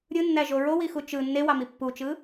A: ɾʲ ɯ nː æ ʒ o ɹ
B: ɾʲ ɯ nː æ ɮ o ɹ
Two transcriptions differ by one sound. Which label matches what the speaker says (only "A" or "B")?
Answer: A